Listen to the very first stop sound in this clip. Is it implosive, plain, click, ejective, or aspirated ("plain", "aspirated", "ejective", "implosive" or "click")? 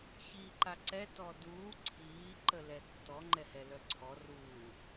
click